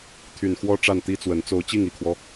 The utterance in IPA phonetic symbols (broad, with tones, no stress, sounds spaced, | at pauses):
t̪ʰ y˨˩ n x w ɔ˥ ʈ͡ʂ a˥˩ n t̪ i˥ t͡s w ə˧˥ n t͡s o˧˥ ʊ̯ t͡ɕ i˥˩ ŋ i˨˩ kʰ w ɔ˦